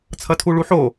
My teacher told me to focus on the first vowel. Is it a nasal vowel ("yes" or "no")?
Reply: no